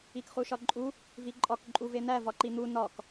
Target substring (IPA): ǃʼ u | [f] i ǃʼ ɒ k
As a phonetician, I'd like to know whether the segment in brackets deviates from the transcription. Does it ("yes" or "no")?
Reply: yes